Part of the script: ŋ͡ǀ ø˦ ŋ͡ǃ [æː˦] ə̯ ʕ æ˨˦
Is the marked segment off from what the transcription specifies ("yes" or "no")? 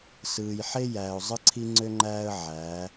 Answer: no